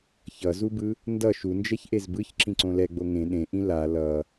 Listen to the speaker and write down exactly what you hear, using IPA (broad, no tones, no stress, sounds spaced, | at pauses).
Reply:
ç ʌ z u b ɯ | n d ʌ ʃ u n d͡ʒ ɛ ç ʔ e z b ɯ ç ǁ ĩ ǀ õ l ɛ ɡ͡b o ŋ ẽ ɗ ẽ ʔ ĩ l a l ʌ